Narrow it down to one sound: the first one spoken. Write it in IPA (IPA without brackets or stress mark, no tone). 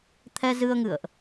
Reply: t̪ʰ